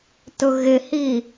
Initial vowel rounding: rounded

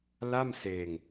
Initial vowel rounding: unrounded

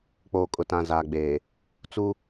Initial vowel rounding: rounded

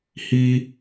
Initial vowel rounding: unrounded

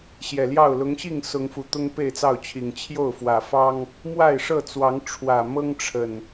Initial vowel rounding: unrounded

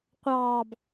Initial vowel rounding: unrounded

